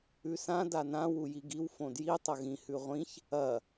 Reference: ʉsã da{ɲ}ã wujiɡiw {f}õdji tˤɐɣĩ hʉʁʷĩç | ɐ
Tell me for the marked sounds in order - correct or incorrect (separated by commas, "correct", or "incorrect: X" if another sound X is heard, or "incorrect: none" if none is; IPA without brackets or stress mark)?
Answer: incorrect: n, correct